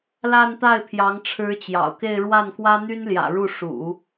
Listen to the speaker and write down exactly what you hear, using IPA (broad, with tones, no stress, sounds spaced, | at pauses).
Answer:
l a˥˧ n t̪ a˥˩ ɪ̯ pʰ j ɑ˧˥ ŋ ʈ͡ʂʰ ɻ̩˧˥ t͡ɕ j ɑ̰˨˩ ʊ̯ k e˥˧ ɪ̯ ɻ w a˥˩ n k w ä˥ n̪ y˥ n l j ä̰˨˩ ɻ u˥˩ ʂ ṵ˨˩˦